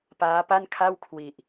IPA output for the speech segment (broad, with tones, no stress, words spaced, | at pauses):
paː˦˥pa˥˩nkʰa˥˩w kʰwi˨˩ʔ